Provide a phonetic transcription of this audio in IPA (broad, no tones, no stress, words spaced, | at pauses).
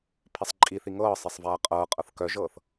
pʰisˤǃʼiθi ŋɤː sˤesˤvaːqʼɤːqʼɤθ kœʒɤːθ